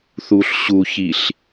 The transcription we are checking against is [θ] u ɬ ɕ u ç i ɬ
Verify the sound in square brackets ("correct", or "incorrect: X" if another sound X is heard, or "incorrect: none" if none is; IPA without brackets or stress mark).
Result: correct